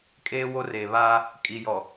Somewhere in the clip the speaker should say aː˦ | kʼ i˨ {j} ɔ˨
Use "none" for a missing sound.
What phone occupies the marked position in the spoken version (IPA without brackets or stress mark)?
j